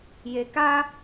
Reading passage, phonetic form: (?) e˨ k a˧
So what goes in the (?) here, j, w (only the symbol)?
j